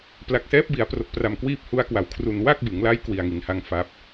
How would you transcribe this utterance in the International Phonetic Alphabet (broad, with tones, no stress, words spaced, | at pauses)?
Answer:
pla˨˩k̚sɛː˦˥p̚bi˩˦a̯pro˨˩k̚ pra˨˩mkwiː˦˥p̚hu˧a̯ kwa˩˦wkʰru˨˩n wa˥˩k̚bɯ˩˦ŋla˦˥j kwi˨˩a̯ŋi˩˦nha˦˥ŋ fa˦˥p̚